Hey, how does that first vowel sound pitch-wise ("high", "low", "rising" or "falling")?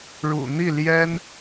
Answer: low